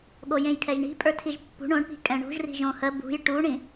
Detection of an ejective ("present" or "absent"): present